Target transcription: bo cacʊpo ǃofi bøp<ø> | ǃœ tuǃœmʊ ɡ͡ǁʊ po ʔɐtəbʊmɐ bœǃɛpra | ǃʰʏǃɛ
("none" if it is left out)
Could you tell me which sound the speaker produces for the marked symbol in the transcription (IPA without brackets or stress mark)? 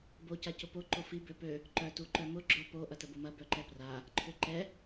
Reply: ø